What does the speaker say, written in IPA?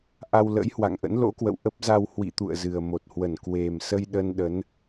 ʔ a˧ w l ə̰˧˥ j h w a̰˧˨ ŋ ʔ ə̰˧˥ n l o̰˧˥ k w ə̰˧˨ w ʔ ə˦˥ p̚ z a˧ w h w ḭ˧˨ t̪ ṵ˧˨ ə̯ z ɨ˨˩ ə̯ m o˨˩ t̚ h w ə˧˩ n k w e˨˩ m s ə˧ j ɗ ə˧ n ɗ ə˨˦ n

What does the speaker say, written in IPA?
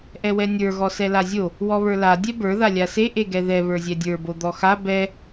ʔ ɛ w ɛ nʲ ə˞ ɣ ɔ s ɛ l a zʲ o | w ɔ β ə˞ l a dʲ ɛ b ə˞ ð a lʲ a s e ʔ e ɡ ɛ ð ɛ β ə˞ zʲ ɛ dʲ ə˞ b o d̪ ɔ x a b ɛ

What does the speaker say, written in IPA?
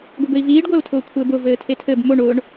ɡʷ ɘ b ɘ i̯ v iː ɖ ɡʷ ɛ u̯ tʰ ʊː kʷʰ ɘː b ʊ v ɘː tʰ e tʰ ɘ b m o ɳ ʊː ɳ

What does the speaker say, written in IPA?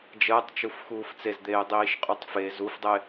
d͡ʒ əː tˤ t͡ʃ u f x uː f t͡s e z d̪ eː dˤ iː ʃ qʼ u tˤ f e z u f dˤ e

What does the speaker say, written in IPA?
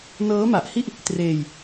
n ɤː˦˥ m a˨˩ ʔ h i˥˩ ʔ | t r eː˧ j

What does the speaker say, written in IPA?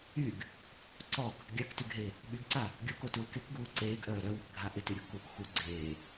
y ɡ | ǀ ɔ ɡ | ɡʲ a k t y ɡ ɦ e | ɓ y ɡ ǀ a | ɡʲ o k o t uː k e k ɡ uː ǀ eː ɡ ʔ œː ɾ œ w ɪ k ɡʱ a ʔ ɪ t y ɾʲ ɔ ɡ k uː k x u ɡ͡ǀ eː

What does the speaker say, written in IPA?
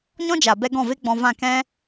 ɲ ɔ̃˦ d͡ʒ a˨ b ɛ˧ ɡ ɔ̃˦˨ v e˦ ɡ͡b ɔ̃˧ v ã˦˨ k ɛ̃˦

